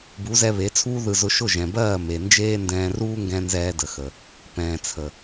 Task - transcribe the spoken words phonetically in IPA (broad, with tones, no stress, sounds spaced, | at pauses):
b u˨˦ z ɛ˧ β e˨˦ t͡sʰ uː˦ ð ɯ˧ z ʊ˧ ʃ ʊ˦˨ ʒ ɛ̃˨ b ɜː˦˨ m e˨ n d͡ʒ eː˦ n d ɛ̃ː˧ r uː˦ ŋ ɡ ɛ̃˧ n z ɛː˧ d ə˨ x ə˨ | p ɛ̃ː˨ t͡sʰ ə˨